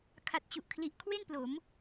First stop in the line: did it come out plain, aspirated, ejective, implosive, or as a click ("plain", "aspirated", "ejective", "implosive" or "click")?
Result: aspirated